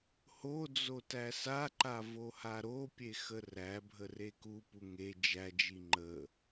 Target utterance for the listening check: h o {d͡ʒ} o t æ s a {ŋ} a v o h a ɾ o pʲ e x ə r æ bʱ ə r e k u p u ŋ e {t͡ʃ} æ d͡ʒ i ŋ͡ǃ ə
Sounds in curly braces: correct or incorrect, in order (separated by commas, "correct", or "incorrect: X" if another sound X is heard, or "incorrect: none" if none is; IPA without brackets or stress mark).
incorrect: d͡z, incorrect: ǃ, incorrect: d͡ʒ